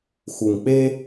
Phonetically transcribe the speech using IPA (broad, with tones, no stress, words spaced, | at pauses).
xu˨ŋ k͡pe˦